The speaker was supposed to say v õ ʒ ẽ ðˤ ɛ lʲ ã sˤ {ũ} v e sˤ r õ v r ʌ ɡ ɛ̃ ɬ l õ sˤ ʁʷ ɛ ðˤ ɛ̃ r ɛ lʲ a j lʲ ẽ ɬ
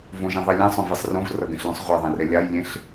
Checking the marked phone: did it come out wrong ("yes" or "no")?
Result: yes